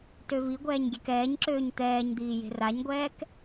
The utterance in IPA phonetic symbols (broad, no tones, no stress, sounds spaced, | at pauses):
t ø v i ɡʷ ɛː ɲ ɡʲ ɛ k ɛː ɲ ǁ øː ɲ t̪ ɛː ɲ d̪ iː j e̤ r a ɲ ɡʷ ɛː k